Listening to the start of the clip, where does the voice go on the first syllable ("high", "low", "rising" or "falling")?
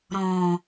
low